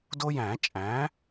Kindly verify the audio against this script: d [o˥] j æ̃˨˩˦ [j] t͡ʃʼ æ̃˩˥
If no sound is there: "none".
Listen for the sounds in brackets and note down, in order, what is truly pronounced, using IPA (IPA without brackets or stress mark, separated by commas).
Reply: o˥, none